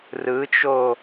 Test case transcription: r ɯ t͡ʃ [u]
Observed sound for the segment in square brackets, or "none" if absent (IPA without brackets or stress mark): o